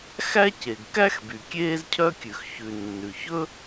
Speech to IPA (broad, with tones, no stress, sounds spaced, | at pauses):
x æ˥ c e˩ ɡ k æ˥ x b y˩ kʲ eː˥ z cʰ œ˥ kʲ ʉ˩ x ç ʉ˩ nː ʉ˩ ç ɵ˥